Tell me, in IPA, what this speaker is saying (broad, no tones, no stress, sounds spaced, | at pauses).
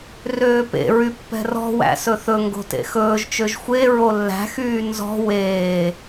r øː p ḛ ɹ y pː ɛ̤ r ɔ̤ w æ̰ s ɵ θ ɵ ŋ ɡ o̤ t ḛ x ɵː ʒ t͡ʃ ø ʒ xʷ e ɹ o lː æ̤ x yː n z ɔ̤ w eː